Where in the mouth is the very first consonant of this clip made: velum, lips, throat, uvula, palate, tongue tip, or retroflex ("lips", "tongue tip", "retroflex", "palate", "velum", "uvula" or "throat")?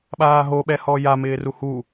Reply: lips